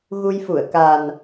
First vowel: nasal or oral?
oral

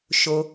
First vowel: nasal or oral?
oral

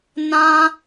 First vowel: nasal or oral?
nasal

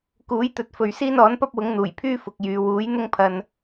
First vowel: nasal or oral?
oral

